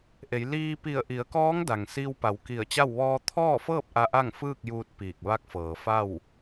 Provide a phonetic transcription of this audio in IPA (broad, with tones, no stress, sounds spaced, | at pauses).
ʔ e˩˧ j l iː˧ p i˧˩ ə̯ ʔ i˩˧ ə̯ k ɔː˧˥ ŋ d a˩ ŋ s i˧ w p a˩˧ w k i˧˩ ə̯ t͡ɕ a˥˨ w ʋ ɔː˧ t̪ʰ ɔː˥˨ f ɤː˥˨ p̚ ʔ a˧ ʔ a˥˨ ŋ f ɯː˥˨ k̚ j uː˧ t̚ p iː˧˩ k̚ ʋ a˧˥ k̚ f ɤː˩ f a˥˨ w